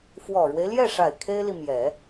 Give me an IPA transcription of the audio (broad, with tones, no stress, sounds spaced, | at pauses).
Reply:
f w ɔ˨˩ ɻ w e˦ ɪ̯ l j ɛ˥˩ ʂ a˨˩ ɪ̯ kʰ e˥ ɪ̯ l i˨ m j ɛ˨˩˦